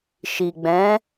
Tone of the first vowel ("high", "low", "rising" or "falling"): low